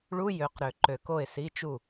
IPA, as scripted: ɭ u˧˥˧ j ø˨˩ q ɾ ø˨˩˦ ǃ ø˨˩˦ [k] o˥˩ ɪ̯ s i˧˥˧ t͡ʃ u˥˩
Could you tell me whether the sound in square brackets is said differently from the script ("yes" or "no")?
no